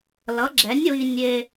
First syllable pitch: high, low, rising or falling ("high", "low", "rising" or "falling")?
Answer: rising